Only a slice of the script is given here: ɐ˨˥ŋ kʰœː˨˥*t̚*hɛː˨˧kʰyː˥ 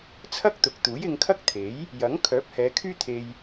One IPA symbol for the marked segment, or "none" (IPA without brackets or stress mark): p̚